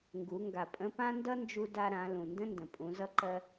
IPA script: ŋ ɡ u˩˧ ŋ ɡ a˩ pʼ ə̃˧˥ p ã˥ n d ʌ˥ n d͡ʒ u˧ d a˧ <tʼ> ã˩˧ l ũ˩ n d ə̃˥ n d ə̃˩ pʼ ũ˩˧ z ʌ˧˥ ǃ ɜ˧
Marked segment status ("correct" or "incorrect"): incorrect